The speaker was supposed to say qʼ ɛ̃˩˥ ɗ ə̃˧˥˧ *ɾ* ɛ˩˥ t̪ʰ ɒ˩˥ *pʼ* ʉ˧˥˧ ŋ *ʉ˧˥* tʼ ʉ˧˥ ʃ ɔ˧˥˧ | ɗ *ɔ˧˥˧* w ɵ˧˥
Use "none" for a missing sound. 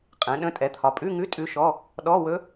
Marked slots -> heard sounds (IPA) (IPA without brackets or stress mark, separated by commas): tʼ, pʼ, ʉ˧˥˧, ɔ˧˥˧